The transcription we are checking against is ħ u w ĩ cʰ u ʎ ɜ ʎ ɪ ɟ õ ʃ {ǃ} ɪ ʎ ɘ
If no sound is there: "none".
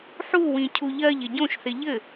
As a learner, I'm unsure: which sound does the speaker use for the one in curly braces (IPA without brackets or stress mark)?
θ